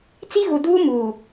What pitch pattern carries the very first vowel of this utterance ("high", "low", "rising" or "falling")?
high